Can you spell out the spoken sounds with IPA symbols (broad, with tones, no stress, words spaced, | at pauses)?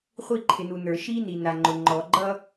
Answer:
χʷi˦˨ǃʰɪ˨nu˨ nə˞˨ʃi˦ni˨ na˨ŋ͡ǃʊ˨ ŋ͡ǃɔ˨ ɡ͡ǃʌ˦